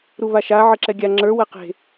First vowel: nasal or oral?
oral